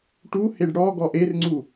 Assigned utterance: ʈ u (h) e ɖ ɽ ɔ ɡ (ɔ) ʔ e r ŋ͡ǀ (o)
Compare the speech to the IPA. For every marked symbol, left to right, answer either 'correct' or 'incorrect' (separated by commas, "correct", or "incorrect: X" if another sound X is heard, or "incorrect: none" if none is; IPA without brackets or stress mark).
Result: correct, correct, incorrect: u